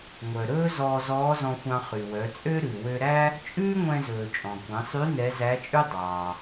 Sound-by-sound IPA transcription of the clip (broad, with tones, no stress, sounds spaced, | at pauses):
ŋʷ œ˩ ɾ ɵː˥ z ɔː˧ z ɔː˧˥ z ɔ̃˧ xʷ ɑ̃˧ χ y˩ w œ˩˧ t͡sʼ ø˥ ɾ ʉ˩ w ø˧ ɾ æ˥ | t͡ʃʼ ʉː˥ ŋʷ ɛ̃˧ z ɵː˩ t͡ʃʼ ɔ̃˩ kʷ ɛ̃˩˧ sˤ y˧˥ n ɛ˧˥ z æ˧˥ t͡ʃʼ ʉ˥ dˤ ɑː˩